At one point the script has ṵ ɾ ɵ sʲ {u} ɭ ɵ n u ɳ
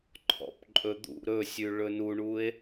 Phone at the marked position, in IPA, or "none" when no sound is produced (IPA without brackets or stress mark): ʉ